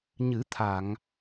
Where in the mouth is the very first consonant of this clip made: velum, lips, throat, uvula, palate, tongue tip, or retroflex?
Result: palate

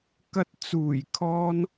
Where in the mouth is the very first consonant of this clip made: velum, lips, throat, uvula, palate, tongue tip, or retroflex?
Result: velum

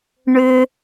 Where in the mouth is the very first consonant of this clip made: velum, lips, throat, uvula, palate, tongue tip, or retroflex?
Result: retroflex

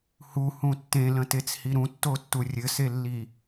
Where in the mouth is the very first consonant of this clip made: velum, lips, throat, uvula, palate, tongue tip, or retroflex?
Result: throat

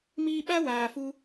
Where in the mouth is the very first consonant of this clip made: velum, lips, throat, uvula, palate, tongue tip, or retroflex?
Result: lips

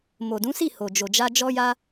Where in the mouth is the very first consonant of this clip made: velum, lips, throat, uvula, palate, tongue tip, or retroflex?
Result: lips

